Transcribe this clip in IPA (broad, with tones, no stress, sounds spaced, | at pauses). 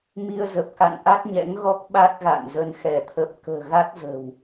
m i˧ ə̯ z ə˨˩ p̚ k a̰˧˨ n ʔ a˦˥ t̚ ɲ ɛ̰˧˥ ŋ ɣ ɔ˦˥ k̚ ɓ a˦˥ t̚ ɣ a̰˧˨ n z ə˧ n x ɛ˧˩ t̪ʰ ə˨˩ p̚ k ə̤ː˨˩ ɣ a˦˥ t̚ z ə̤˨˩ w